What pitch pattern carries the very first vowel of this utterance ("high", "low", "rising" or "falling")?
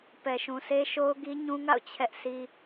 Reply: low